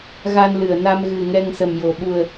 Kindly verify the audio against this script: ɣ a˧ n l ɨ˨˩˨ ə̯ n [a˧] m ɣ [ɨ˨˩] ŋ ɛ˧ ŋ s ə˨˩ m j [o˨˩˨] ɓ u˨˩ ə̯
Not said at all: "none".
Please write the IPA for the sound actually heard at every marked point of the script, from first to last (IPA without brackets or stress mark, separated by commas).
a˧, ɨ˨˩, o˨˩˨